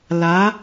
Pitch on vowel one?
rising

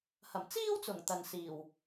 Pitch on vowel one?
low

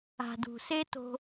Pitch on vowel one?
low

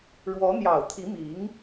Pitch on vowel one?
rising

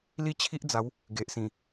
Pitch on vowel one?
falling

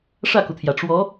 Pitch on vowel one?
falling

